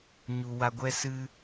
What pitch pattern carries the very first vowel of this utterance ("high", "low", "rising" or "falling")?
low